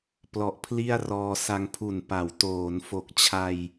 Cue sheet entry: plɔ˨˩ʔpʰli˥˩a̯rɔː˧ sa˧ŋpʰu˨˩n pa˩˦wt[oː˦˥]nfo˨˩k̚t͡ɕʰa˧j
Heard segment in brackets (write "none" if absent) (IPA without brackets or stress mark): oː˩˦